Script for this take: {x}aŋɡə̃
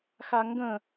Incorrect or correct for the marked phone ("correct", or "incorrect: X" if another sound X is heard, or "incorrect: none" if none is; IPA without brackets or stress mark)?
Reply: correct